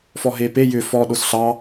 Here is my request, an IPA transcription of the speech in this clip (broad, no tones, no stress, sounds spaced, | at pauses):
f ɔ ɦ e p e j ʏ f ɔ ɗ o s ɬ ɑ